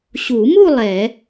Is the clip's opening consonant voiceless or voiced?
voiceless